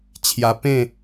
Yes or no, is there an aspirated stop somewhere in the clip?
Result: yes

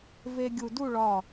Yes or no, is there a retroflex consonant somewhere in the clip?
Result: yes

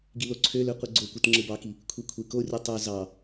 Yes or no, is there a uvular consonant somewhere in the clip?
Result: yes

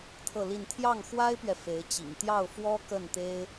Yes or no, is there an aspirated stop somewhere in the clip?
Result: yes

